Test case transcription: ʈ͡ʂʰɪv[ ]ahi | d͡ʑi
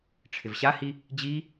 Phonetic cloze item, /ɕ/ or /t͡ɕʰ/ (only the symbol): ɕ